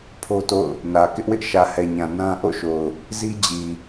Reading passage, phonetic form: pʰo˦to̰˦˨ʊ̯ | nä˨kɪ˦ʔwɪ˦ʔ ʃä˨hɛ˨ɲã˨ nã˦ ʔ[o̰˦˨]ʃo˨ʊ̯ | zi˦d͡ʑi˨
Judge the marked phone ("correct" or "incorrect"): correct